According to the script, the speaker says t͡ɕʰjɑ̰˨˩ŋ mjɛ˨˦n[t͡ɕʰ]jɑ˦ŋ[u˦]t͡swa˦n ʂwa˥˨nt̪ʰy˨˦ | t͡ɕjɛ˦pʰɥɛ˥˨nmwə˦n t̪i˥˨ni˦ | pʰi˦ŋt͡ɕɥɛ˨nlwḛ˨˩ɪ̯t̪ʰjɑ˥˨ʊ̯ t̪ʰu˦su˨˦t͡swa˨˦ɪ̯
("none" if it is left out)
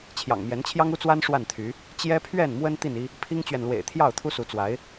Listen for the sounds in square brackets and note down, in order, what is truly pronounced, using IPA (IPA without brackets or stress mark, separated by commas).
t͡ɕʰ, u˦